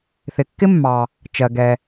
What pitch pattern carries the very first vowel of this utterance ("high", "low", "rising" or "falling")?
low